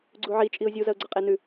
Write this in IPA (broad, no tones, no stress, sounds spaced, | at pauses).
ɡ͡ǀ u ʕ i t͡ʃʼ i ʊ̯ zʲ u z ɐ ʊ̯ ɡ͡ǀ ɐ qʼ e n ʉ